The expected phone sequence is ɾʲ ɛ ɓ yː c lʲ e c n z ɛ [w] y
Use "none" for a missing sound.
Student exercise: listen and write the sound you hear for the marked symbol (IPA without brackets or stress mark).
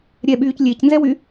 w